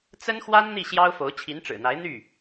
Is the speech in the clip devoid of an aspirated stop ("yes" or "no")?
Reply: no